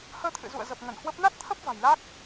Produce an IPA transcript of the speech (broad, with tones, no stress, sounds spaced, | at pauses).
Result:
h əː˧ t̪ʰ ɨ̰˧˨ z ṵ˧˨ ə̯ z ə˨˩ p̚ ŋ ə˧˩ n h w ə˦˥ p̚ n a˦˥ t̚ t̪ʰ ə˦˥ p̚ v a̤˨˩ j l a˦˥ k̚